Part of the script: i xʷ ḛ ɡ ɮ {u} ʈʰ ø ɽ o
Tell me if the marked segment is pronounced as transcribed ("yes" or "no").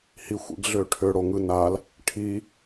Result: no